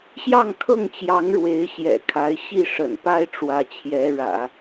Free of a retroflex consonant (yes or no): no